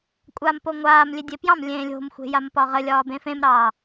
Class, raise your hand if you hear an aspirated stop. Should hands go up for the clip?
no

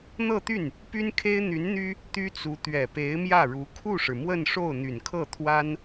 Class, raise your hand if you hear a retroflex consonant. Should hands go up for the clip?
yes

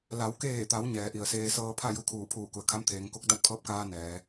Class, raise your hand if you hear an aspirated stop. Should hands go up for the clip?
yes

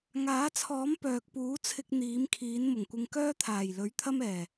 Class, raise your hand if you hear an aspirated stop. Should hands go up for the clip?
yes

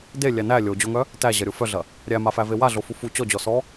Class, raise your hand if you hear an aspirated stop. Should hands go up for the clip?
no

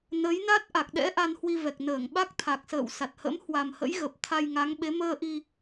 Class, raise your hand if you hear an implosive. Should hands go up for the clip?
yes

